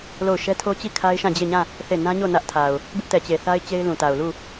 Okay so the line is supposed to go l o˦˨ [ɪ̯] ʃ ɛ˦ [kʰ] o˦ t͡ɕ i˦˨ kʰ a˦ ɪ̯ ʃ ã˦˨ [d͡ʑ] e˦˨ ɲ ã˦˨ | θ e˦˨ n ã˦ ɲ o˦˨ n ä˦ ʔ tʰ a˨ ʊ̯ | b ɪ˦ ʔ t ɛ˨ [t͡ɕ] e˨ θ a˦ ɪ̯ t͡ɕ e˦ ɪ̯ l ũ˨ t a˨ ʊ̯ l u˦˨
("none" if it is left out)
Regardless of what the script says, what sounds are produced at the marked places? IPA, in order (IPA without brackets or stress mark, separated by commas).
ʊ̯, tʰ, d͡ʑ, t͡ɕ